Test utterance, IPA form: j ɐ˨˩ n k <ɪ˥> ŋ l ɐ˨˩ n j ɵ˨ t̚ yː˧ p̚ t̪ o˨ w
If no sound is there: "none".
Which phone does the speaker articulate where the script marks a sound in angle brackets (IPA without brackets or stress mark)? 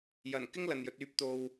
ɪ˥